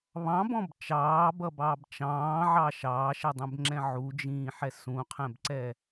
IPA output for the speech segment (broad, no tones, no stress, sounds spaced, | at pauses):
β ɑ̃ b ɔ̃ b t͡ʃ ɑː b ʌ b ɑː b t͡ʃ ɑ̃ː ʕ ɑ ʃ ɑː ʃ ɛ dˤ ɛ̃ b ŋ͡ǁ ɛ̃ ʕ u d͡ʒ ĩː ħ ɛ s ũ qʰ ɛ̃ b ǀ ɛ